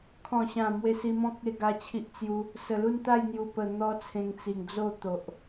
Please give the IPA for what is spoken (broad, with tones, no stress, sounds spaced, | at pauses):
kʰ ɔ̃˨˩ ɕ ã˨˩ m w e˧ s i˧ m ɔ̃˦ k̚ e˥˧ ɡ a˧ t͡ɕʰ i˦ ʔ t͡s j u˦ | s ə˨˩ l u˥˧ n t̪ a˥˧ j n̪ j u˨˩ p ə˨˩ n̪ ɔ˧ t͡sʰ ẽ˧ ŋ t͡s i˨˩ ŋ d͡z o˥˧ t̪ o˨ ʔ